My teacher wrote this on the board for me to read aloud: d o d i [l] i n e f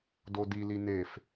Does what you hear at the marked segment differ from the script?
no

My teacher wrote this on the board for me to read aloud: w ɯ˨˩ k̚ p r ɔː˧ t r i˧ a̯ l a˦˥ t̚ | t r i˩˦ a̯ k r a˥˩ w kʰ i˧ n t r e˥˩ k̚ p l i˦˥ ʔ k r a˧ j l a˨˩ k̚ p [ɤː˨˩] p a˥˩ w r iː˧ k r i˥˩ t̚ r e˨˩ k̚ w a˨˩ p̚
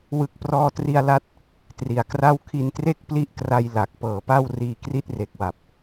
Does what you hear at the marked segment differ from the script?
no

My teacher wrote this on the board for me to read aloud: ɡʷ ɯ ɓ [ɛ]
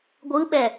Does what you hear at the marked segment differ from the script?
no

